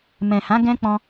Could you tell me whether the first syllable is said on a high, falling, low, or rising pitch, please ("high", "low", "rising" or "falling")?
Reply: low